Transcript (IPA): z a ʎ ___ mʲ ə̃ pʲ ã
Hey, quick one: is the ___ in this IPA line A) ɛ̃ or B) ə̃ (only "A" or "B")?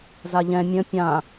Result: A